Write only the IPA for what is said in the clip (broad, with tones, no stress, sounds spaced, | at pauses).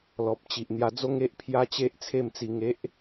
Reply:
l ɔ˨ p̚ t͡ɕ i˨ ʔ n̪ j a˧ d͡z o˦ ŋ e˦ ʔ pʰ j a˦ t͡ɕ e˦ ʔ t͡sʰ e˥˧ m t͡s i˧ ŋ e˦ ʔ